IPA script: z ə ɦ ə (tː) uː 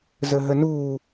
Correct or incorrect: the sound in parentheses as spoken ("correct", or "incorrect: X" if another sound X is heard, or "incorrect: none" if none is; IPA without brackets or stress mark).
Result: incorrect: n